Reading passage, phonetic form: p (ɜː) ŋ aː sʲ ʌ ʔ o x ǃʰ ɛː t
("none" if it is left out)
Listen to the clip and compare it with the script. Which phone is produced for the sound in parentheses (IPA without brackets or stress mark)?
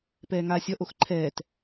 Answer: ɛː